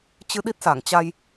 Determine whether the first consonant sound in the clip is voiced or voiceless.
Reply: voiceless